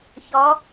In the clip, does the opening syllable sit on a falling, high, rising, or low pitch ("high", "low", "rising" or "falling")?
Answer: rising